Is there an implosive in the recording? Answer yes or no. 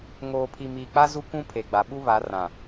yes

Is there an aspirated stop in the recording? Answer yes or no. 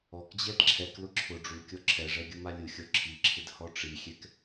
yes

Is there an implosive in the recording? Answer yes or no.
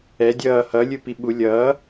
yes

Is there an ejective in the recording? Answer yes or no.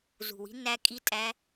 yes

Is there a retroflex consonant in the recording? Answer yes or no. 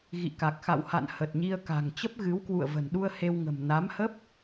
no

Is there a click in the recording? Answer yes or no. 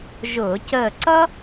yes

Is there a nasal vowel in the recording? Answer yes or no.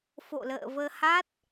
no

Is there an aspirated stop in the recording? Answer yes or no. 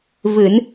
no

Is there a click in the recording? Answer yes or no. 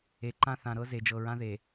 yes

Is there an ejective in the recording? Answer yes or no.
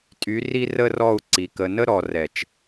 yes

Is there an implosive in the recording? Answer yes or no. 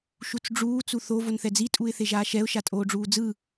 no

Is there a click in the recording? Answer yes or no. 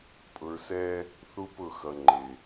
yes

